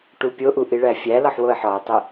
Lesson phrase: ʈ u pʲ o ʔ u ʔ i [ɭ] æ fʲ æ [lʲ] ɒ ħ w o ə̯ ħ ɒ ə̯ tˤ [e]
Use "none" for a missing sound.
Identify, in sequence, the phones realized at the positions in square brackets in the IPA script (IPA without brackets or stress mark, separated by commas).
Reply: ɭ, l, e